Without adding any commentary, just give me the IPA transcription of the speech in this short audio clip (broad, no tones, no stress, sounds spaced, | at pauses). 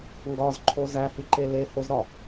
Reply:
ŋ ɡ ɒ z ǃʰ o z æ h i ǃ e l e h o z ɾ ɒ